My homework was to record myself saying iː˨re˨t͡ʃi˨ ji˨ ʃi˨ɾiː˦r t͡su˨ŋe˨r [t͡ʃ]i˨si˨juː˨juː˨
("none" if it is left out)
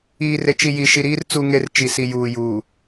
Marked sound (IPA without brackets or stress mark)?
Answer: t͡ʃ